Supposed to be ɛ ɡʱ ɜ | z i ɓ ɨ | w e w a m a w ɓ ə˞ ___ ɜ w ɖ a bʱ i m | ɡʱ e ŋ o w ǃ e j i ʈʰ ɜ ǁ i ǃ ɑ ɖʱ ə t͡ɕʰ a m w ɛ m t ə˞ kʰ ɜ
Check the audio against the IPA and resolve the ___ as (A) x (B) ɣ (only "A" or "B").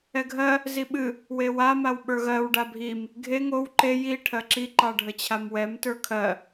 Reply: B